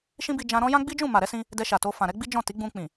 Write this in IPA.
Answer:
ʃ ĩ˦ b i˧ d͡ʒ ã˧ ɾ ɔ̃˦ j ã˦ ɡ͡b i˦ d͡ʒ ũ˦˨ m a˨ ɾ ɛ˨˦ s ĩ˧ | d ɛ˧ ʃ a˨ t o˧ f ã˨ ɾ ɛ˨˦ ɡ͡b i˦ d͡ʒ ɔ̃˦˨ t i˨˦ ɡ͡b ũ˧ k͡p ĩ˨

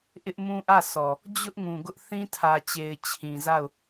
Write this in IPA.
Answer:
ʔ ɪ˦ ʔ m ũ˦ ʔ ä˦˨ s ɔ˨ | d͡ʑ ʊ˦ ʔ ŋ ũ˨ ɡ ʊ˦ ʔ θ ĩ˦ tʰ ä˨ t͡ɕ e˨ ɪ̯ t͡ɕʰ ĩ˨ z a˦˨ ʊ̯

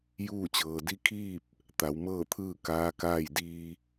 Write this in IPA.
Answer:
j uː˥˨ t͡ɕ ɤː˩ d i˧˥ kʰ iː˥˨ p̚ | t̪ a˩˧ w m ɤː˥˨ t̪ʰ ɯː˥˨ k aː˧˥ k aː˥˨ j d iː˧

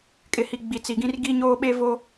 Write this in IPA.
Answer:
kʼ ɪ˨ h i˨ ɡ͡b i˨ t͡s i˨ ɡ ĩ˦ r ɡ i˦ ɲ oː˦ ɓ e˦ v o˦

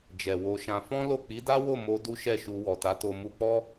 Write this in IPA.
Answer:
d͡ʒ ɛ˨ w o˧ ʃ ã˧ f ɔ̃˦ l o˦˨ k͡p i˨˦ d a˦ w o˦˨ m o˧ d u˦ ʃ ɛ˦˨ ʃ u˧ w ɔ˨ t a˨˦ t o˧ m u˧ k͡p ɔ˦

